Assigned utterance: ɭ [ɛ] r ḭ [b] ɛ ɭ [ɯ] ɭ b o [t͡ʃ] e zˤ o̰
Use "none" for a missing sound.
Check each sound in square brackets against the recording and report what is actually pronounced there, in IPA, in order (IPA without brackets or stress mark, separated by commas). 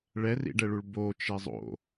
ɛ, ɖ, u, t͡ʃ